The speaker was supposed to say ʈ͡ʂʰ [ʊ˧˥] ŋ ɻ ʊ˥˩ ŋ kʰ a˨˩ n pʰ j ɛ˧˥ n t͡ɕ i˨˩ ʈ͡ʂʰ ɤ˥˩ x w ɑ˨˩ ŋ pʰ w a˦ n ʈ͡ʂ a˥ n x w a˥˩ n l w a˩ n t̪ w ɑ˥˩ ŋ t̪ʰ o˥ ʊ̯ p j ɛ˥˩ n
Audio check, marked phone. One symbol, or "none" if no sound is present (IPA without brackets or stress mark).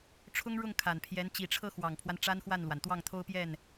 ʊ˥